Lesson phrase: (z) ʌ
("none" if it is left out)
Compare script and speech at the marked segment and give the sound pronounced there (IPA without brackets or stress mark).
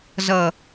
z